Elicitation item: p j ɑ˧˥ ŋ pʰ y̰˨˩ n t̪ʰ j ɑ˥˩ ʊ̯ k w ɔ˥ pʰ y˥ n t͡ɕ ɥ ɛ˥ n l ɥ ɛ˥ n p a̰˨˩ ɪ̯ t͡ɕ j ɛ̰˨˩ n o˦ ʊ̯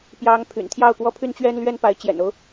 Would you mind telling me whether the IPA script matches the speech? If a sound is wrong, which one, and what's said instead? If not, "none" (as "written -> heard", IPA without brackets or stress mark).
a̰˨˩ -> a˧˥